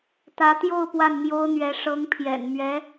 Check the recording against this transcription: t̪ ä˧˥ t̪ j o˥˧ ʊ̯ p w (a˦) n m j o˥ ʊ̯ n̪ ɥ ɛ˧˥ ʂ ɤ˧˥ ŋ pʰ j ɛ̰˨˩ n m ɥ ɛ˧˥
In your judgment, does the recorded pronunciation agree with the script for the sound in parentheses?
no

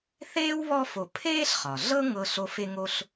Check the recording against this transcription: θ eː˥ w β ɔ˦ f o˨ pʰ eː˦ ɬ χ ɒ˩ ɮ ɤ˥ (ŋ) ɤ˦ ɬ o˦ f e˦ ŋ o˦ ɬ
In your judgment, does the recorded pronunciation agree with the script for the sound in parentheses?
yes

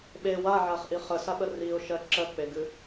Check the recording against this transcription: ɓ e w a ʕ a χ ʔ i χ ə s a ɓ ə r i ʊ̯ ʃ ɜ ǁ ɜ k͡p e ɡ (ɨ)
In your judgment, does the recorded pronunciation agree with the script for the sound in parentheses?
yes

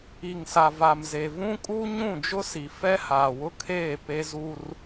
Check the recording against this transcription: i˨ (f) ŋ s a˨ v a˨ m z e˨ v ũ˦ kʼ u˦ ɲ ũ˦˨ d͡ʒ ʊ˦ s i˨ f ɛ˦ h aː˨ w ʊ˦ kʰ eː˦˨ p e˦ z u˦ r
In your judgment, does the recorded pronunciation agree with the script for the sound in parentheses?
no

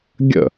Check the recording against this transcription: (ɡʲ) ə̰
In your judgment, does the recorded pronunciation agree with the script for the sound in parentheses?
yes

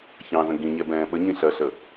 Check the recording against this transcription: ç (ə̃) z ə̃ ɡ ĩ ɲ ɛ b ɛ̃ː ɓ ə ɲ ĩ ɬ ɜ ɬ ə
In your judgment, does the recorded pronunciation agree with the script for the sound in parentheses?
no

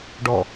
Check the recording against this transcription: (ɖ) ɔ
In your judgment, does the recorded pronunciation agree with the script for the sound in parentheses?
yes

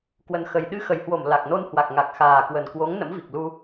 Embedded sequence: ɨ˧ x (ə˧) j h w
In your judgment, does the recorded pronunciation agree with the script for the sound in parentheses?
no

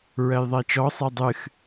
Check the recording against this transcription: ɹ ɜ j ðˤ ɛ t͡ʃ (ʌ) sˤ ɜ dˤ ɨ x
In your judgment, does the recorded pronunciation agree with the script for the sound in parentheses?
no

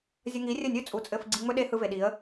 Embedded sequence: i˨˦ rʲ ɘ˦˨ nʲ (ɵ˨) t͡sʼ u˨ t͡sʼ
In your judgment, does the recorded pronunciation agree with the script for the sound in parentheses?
no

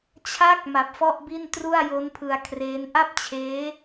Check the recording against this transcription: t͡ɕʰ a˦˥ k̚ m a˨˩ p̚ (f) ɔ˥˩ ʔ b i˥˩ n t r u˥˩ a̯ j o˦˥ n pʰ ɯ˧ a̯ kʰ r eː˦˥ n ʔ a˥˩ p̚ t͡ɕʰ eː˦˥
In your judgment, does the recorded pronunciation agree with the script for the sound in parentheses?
yes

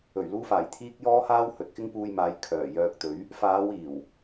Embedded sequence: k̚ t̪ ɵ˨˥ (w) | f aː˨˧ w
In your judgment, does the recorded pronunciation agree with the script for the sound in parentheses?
no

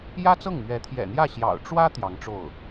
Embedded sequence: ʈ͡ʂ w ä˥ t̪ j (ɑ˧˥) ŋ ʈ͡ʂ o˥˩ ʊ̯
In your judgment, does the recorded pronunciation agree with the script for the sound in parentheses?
yes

